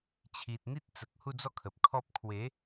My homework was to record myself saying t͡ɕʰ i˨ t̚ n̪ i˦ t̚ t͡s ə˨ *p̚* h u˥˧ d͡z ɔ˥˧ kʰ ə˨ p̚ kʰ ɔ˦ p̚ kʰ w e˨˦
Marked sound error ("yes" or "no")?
yes